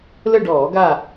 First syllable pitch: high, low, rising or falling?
falling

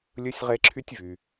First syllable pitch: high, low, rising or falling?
high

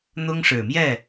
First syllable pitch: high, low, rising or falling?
high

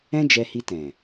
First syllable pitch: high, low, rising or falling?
high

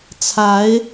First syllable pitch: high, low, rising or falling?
rising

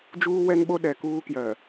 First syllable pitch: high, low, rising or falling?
high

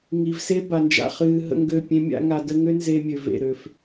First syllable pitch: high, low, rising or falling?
low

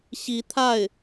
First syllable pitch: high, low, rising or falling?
rising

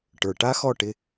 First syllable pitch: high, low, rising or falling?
low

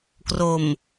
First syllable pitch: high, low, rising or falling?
low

